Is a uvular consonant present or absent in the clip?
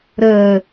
absent